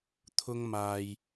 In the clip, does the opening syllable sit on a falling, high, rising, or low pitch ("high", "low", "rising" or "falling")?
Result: high